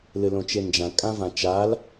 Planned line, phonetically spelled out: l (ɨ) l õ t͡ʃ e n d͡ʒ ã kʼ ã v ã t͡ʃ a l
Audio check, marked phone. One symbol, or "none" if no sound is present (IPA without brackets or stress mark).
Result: ɨ